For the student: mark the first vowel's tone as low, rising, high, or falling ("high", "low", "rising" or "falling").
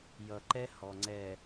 low